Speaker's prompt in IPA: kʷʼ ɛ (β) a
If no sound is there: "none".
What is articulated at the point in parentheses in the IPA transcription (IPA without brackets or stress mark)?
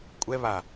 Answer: β